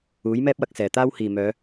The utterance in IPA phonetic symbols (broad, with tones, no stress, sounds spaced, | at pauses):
uː˨˥ j m ɛː˥ p̚ w ɐ˧ k̚ s ɛː˨˩ t̪ aː˥ w h iː˨˩ m œː˨˧